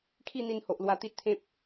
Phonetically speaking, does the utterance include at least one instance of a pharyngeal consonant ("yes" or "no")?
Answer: no